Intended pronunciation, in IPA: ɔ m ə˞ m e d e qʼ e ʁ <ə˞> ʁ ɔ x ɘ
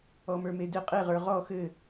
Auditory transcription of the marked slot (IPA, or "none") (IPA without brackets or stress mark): ə˞